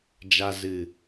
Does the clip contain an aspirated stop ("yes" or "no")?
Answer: no